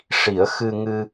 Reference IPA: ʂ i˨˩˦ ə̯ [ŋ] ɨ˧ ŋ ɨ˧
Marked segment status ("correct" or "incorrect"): incorrect